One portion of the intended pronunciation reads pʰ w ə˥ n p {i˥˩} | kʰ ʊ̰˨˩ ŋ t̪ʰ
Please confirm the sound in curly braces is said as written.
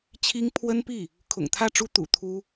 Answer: yes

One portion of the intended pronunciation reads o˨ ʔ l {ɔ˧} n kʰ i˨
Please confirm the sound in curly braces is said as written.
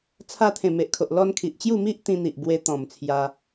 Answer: yes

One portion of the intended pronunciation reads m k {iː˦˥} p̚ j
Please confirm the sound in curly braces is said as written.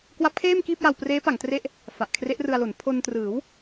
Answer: no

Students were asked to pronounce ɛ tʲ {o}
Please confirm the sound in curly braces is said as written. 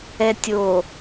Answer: yes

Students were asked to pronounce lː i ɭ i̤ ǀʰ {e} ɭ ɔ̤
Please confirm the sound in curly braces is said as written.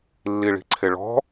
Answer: yes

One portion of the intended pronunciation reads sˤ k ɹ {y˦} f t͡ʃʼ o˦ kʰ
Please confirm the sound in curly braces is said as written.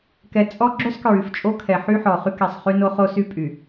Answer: no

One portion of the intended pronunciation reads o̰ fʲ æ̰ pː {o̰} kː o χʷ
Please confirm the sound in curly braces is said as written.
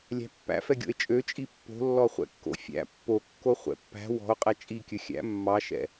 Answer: no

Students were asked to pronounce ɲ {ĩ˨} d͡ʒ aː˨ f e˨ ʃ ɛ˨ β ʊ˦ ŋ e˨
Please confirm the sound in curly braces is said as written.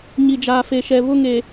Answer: no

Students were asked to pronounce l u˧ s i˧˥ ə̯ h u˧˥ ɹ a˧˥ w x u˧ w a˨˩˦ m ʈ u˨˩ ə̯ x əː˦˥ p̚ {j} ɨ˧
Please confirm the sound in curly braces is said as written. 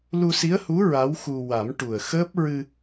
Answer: no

